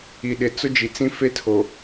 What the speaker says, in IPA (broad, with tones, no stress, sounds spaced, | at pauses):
i˨ ɗ ɪ˨ t͡s ʊ˦ d͡ʒ i˨ t͡s ĩ˦ f e˦ tʰ o˨